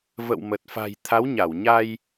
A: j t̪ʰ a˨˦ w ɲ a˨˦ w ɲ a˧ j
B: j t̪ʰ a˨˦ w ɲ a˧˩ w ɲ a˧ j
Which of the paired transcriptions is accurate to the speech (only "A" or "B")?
B